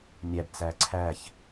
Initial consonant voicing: voiced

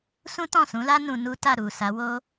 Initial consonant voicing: voiceless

